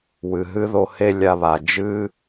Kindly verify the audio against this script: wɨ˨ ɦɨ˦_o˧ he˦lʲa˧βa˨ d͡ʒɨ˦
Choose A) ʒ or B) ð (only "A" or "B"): B